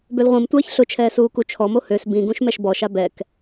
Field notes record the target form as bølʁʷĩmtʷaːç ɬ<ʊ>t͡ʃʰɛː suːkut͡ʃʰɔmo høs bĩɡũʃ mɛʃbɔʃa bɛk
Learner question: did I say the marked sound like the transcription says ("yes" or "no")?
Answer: yes